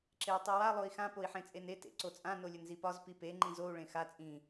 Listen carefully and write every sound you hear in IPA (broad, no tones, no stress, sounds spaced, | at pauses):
ǁ e y̯ tˤ i w a lˠ o i̯ x ã p o i̯ ħ ẽ t͡sʼ e n e t ḛ ǀ o t͡sʼ ã n o lʲ ə n z i p ɒ z p i p e ŋ͡ǃ ĩ z o u̯ ɭ ẽ x a t͡sʼ ĩ